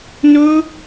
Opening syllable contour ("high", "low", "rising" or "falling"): high